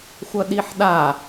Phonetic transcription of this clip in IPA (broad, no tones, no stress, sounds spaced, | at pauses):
xʷ ɐ ɗ i ħ ɗ a